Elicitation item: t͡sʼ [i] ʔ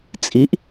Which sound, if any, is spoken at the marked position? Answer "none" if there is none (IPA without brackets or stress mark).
i